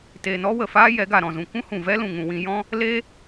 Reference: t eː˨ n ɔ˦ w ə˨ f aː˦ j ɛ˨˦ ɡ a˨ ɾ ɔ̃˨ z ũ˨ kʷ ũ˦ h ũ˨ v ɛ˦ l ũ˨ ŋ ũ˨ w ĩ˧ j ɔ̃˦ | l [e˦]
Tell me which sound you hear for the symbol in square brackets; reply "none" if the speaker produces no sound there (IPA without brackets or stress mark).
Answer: e˦